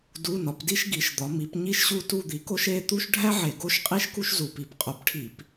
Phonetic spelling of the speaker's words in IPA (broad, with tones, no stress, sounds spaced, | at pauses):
d u˧˥˧ n ɒ˨˥ p d i˥ ʃ ɡ i˨˥ ʃ d̪ ɒ˨˥ m i˨˥ p ɲ i˥ ʃ ɕ u˥˧ t u˥˧ d̪ i˨˥ k o˥ ʃ e˧˥˧ t̪ u˥ ʃ ɖʱ æ˥ ʕ e˧˩˧ ɡ o˥˧ ʃ qʼ i˥ ʃ k u˥ ʃ z u˧˩˧ p i˨˥ p qʼ o˨˥ p ʈʰ i˧˩˧ p